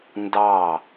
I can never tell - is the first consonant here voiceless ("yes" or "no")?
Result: no